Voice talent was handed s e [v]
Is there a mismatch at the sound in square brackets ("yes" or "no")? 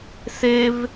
no